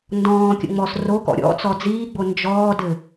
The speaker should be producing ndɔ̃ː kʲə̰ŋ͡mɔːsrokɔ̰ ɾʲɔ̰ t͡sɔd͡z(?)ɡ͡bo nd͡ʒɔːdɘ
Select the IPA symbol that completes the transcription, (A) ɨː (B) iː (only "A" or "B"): B